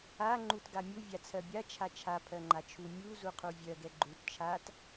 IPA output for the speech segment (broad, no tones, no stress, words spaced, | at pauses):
a ŋ͡ǃutɡamʲu vʲat͡sʰɜbʲa t͡ʃʰat͡ʃʰa pʰɜŋ͡ǃat͡ʃʰu mʲu zuqʰuvʲɜɡ ɛɡ͡ǃut t͡ʃʰat